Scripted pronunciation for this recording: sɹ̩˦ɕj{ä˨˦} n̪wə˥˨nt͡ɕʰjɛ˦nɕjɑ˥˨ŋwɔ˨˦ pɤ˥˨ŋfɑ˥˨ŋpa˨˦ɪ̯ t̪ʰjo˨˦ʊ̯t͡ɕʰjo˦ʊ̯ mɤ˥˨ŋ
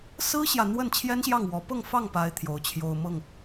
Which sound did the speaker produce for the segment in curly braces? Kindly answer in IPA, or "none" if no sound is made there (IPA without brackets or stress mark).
ä˨